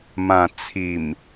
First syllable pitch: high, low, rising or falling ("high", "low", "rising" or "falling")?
low